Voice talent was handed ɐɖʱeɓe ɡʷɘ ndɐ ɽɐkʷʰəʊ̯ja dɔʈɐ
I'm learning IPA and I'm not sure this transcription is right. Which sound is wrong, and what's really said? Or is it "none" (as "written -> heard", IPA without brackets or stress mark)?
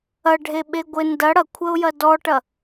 a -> ɐ